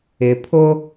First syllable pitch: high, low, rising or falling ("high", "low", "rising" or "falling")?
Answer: low